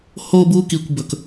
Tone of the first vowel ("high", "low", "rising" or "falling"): high